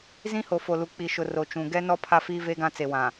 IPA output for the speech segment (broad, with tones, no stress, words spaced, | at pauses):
zĩ˦ho˨fo˨lu˨ k͡pi˨ʃʊ˨ ro˨t͡ʃũ˨ ɡɛ˦nɔ˦ pʰa˦fiː˦ve˦ɡã˦ t͡se˨wã˨